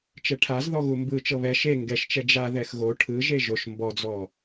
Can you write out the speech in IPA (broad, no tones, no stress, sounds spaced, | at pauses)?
t͡ʃ ɛ ʈʰ a z ð ɔ ɣ u m b ɯ t͡ʃ ɤ β ɛ ʃ e ŋ ɡ ɛ ʃ t͡ʃ ɛ d͡ʒ a ð ɛ x ɣ o ʈʰ ɯ ʒ e ʒ o ʃ m b ɔ d͡z ɔ